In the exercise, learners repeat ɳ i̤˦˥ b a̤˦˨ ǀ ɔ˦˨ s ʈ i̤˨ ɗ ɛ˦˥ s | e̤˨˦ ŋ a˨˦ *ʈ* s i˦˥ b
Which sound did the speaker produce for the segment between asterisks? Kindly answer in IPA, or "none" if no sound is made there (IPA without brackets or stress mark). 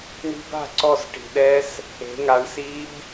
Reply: ɳ